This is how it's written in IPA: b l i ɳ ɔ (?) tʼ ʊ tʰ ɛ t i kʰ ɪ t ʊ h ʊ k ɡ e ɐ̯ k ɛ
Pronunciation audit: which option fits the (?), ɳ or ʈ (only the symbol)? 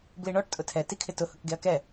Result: ʈ